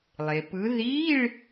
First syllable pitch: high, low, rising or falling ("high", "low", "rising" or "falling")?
low